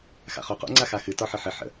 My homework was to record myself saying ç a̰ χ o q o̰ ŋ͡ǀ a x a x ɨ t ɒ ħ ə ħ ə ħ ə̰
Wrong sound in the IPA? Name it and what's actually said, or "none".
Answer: ç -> x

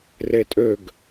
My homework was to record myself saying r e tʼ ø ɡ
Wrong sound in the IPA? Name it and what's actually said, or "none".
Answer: none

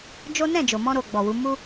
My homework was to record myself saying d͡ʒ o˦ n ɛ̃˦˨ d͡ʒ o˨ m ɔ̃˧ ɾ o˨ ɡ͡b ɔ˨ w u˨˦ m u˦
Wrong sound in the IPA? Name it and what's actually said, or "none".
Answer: none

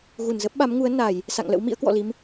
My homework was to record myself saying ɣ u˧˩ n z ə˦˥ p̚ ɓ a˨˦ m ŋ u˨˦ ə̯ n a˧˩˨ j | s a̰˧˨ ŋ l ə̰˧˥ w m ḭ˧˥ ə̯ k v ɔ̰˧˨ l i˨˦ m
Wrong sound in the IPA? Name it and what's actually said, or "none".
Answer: v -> w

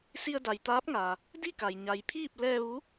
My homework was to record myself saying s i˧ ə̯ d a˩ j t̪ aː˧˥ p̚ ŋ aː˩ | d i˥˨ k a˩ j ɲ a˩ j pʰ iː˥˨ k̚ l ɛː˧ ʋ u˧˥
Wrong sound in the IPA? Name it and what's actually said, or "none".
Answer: k̚ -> p̚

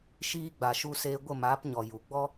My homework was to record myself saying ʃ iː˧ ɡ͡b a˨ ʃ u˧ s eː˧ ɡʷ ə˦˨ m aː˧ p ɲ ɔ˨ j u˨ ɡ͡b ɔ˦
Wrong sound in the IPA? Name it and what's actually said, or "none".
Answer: aː˧ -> aː˨˦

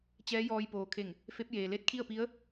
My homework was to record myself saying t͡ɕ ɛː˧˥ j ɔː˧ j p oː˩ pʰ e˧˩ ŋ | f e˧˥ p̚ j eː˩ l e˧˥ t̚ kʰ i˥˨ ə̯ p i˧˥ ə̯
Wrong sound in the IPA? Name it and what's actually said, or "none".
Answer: pʰ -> kʰ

